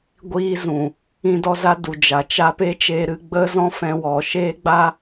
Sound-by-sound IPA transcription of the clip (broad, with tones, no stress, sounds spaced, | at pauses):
ɡʷ iː˧ z ũ˨ | ĩ˧ d ɔ˧ z a˧ d u˨ d͡ʒ a˨ t͡ʃ a˧ p e˦ t͡ʃ eː˧ ɾ ɨ˧ ɡ͡b ə˦ z ɔ̃˦ f ɛ̃˧ w ɔ˨ ʃ e˦ ɡ͡b a˦